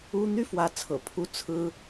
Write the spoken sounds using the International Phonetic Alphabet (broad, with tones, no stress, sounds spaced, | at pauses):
u˥ n̪ y˥˩ f w ä˧˥ t͡sʰ ɤ̰˨˩ pʰ u˥ t͡sʰ ɹ̩˥